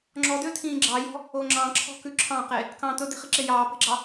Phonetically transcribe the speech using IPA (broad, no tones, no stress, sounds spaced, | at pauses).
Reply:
ŋ͡ǁ ɔ d ø tʰ ĩː ɡ͡ǁ ɑ j ɔ̤ | o ŋ͡ǁ ɑ̃ ǁʰ ɔ̤ k ʉ ǁʰ ɑ̃ q e | k ɑ̃ t̪ ɵ d e̤ χ i ǁ e j ɑː p e̤ ɡ͡ǁ ɑ